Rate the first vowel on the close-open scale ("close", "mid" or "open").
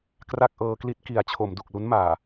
open